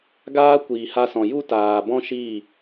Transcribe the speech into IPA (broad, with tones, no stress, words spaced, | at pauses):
ɡaː˧ kʷiː˨ha˧sɔ̃˨ju˦ taː˨bɔ̃˦ʃiː˦˨